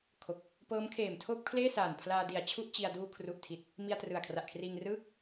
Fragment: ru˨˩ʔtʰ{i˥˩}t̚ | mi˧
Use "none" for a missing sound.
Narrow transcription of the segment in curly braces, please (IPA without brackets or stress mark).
i˨˩